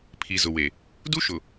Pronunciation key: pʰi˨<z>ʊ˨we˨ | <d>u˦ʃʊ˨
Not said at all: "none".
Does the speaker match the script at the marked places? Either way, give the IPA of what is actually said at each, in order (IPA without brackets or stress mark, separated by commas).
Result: z, d